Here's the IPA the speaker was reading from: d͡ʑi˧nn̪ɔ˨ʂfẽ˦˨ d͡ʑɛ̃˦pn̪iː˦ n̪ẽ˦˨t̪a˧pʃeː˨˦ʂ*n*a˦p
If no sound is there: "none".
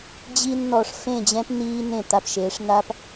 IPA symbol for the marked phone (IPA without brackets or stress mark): n